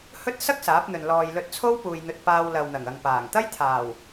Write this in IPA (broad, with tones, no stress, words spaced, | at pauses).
hɵ˥t̚ sɐ˥k̚ saː˨˥p̚n̪ɵ˨n lɔː˨jlɵ˧t̚t͡sʰo˥w puː˧j n̪ɵ˧t̚ paː˧w lɐ˨wn̪ɐ˨˩ŋɐ˨ŋpaː˨˩ŋ t̪ɐ˥jt̪ʰaː˨˩w